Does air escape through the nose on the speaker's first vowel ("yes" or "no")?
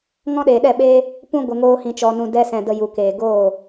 yes